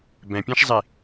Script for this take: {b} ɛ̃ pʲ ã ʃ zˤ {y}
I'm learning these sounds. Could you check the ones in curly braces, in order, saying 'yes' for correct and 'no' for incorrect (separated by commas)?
yes, no